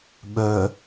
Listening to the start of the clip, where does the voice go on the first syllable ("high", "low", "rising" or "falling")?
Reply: low